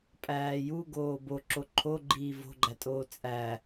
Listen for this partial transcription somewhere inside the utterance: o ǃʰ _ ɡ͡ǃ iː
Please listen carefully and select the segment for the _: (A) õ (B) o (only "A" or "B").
B